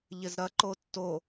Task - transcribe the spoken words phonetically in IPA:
ʎ ɪ z ɾ ɐ ǃ o tː o

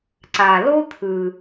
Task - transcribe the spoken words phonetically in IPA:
ǀ a˨ l o˥ t̪ʰ ɯ˨

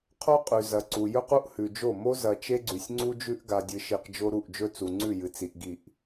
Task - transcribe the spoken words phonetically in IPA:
qʰ o˦ qʼ ʉ˨ z ɐ˨ ǀ u˨ j ɵ˦ q u˦ ʔ h ʉ˨ d͡ʒ o˦˨ m o˦ z ɐ˨ t͡ʃ e˦ ɡ͡ǀ ʉ˨ sʲ ŋ͡ǀ u˦ d͡ʒ ʉ˦ ʔ ɡ a˨ dʲ ɨ˨ ʃ i˨ q d͡ʒ o˦ ɾ u˦˨ ʔ d͡ʒ ɵ˦ t͡s u˨ ŋ͡ǀ ʉ˦˨ j ɨ˨ t͡s i˨ ʔ ɡ i˦˨ ʔ

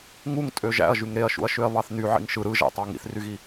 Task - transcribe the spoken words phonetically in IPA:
ŋ u ŋ tʼ ø ʒ æ̰ ɐ̯ ʒ y ŋ ɾ e ɐ̯ ʃ ṵ ɐ̯ ʃ ø ɐ̯ β ɑ θ n y ʕ ḭ ŋ ʃ ɯ ɾ ɯ ʒ æ̰ tˤ ɑ ŋ ḭ θ r y ɣ i

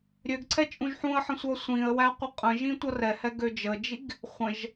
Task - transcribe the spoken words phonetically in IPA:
ɾʲ ø ɡ ǀʰ ɛ t͡ʃʼ ũ ʒ ħ ũ ə̯ ħ ə̃ sʷ ʌ sʷ ĩ ə̯ w æ qʷ ə qʼ ə̃ ʒ ĩ tʷ ʌ r ɛ h ɛ ɡ ø d͡ʒ ə d͡ʒ i ɡ | χʷ ə̃ ʒ

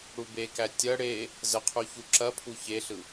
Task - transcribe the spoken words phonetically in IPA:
ɽ u b e k æ tʲ ɐ ɽ e | z ə qʰ u ç u ǁ ɐ pʰ u ç e ɬ ɯ

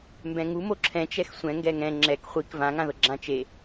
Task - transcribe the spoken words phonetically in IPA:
m b ɛ̃ ŋ u m o ǁʰ ɛ̃ t͡ʃ ɛ x sʷ ɛ̃ ŋ ɡ ɛ ŋ ɛ̃ ŋ͡ǁ ɛ k χʷ i k v ã ŋ ã ð ɤ ɡ͡ǁ ã t͡ʃ e

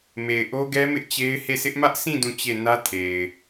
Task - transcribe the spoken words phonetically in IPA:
m e˨ ɪ̯ ʔ o˦ ɡ ɛ˦ m ɪ˦ ʔ t͡ɕ e˦ ɪ̯ h e˦˨ s ɪ˦ ʔ m ä˦ ʔ s ĩ˦˨ d ũ˦˨ t͡ɕ e˦˨ n ä˦ tʰ e˨ ɪ̯

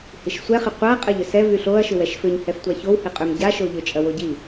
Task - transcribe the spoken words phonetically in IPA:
h i ʃ sʷ ɛ χ ɪ qʷ a qʼ ɐ ʎ ʏ s ɛ v y ɬ o ɐ̯ ʃ ʏ w ɛ ʃ f ʏ ɲ h ɛ f tʷ a ç o w h ɪ qʼ ʏ m ɟ a ʃ o ʎ ʏ t͡ʃʼ ɐ w o ɟ i

